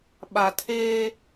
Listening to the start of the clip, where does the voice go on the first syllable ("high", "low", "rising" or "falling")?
low